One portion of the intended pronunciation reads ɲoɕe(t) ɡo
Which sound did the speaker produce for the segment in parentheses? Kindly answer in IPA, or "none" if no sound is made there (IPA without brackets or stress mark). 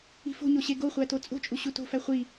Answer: none